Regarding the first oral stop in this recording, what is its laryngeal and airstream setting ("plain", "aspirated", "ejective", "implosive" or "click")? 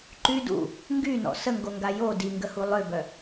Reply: click